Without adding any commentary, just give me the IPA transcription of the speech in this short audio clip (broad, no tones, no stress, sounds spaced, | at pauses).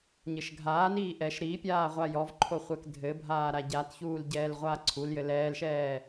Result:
ɲ ɘ ʃ ɡʱ aː n iː ʔ ɛ ʃ ɾ i pʲ aː ʁʷ a j ɔ v ǃʰ o χʷ ɛ k dʱ ɘ bʱ aː ɾ a ɟ a t ç uː l ɟ ɛː l ʁʷ aː ǀʰ u l j ɘ l ɛː l ʃ ɛː